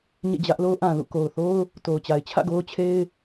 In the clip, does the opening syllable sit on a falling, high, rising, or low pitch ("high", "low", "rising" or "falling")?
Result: falling